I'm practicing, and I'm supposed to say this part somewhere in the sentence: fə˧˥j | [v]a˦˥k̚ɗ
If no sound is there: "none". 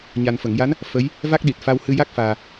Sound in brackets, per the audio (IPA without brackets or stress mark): v